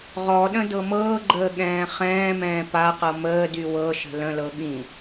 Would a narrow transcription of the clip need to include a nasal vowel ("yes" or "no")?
yes